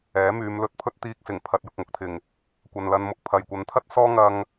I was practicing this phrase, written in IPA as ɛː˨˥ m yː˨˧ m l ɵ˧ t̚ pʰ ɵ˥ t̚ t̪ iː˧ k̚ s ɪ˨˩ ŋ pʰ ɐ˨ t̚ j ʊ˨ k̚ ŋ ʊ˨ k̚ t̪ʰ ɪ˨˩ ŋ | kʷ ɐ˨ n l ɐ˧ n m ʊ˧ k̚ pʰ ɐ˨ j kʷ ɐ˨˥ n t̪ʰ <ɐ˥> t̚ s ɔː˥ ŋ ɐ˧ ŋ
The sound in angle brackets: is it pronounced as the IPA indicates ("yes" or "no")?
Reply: yes